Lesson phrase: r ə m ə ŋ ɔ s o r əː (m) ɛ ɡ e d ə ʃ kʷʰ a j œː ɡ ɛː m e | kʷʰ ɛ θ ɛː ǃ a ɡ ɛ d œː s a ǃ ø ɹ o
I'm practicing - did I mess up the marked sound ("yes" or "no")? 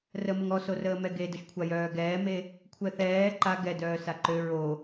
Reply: no